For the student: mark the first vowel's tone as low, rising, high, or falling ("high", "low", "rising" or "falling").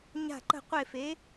falling